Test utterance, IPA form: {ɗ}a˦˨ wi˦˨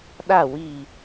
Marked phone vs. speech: correct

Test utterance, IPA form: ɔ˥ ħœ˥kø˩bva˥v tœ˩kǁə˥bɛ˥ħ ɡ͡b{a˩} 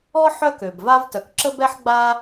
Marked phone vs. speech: incorrect: a˥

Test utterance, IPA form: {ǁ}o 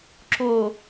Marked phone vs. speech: correct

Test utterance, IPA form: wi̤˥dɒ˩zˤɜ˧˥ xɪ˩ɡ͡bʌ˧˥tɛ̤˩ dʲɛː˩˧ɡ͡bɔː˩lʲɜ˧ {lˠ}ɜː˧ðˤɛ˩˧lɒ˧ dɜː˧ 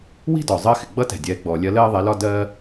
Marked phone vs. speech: incorrect: l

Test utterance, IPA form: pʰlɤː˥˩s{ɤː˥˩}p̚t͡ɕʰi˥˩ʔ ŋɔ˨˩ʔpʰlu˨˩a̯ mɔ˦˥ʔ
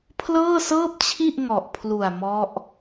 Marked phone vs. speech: correct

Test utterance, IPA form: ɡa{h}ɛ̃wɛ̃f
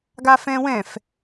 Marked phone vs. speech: incorrect: f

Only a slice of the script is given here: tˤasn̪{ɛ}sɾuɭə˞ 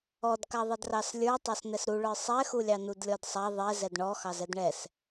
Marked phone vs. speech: correct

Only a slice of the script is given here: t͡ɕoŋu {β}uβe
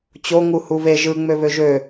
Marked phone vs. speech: incorrect: h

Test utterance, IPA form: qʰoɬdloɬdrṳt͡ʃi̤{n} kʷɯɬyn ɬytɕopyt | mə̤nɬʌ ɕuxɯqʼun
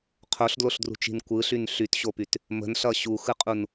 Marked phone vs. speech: correct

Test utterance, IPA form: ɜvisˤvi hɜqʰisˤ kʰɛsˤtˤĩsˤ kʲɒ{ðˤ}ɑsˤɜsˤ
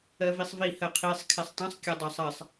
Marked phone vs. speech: incorrect: dˤ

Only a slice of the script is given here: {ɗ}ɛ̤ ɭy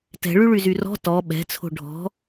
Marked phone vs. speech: incorrect: t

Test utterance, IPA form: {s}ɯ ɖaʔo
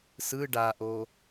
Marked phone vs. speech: correct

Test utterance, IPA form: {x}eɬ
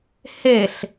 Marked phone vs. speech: incorrect: h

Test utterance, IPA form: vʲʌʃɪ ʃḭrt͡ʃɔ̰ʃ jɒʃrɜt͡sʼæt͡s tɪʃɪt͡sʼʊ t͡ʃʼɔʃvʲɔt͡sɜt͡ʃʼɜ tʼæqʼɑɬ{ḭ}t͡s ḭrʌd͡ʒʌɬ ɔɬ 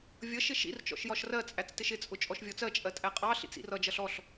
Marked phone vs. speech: correct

